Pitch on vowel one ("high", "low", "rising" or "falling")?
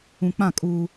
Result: low